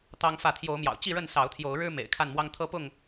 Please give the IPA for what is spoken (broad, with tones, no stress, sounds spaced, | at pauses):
t̪ ɑ˦ ŋ f ä˥˨ t̪ʰ j o˨˦ ʊ̯ m j ɑ̰˨˩ ʊ̯ t͡ɕ i˥˨ ɻ ə˥˨ n s ɑ˨˦ ʊ̯ t̪ʰ j o˨˦ ʊ̯ ɻ ɻ̩˦ m ḛ˨˩ ɪ̯ kʰ a˥˨ n m w ɑ˦ ŋ t̪ʰ ɤ˦ p ʊ˥˨ ŋ